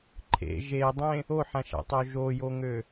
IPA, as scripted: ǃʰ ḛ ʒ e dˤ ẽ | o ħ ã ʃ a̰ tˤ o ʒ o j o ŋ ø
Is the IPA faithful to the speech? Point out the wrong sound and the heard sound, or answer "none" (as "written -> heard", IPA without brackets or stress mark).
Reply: none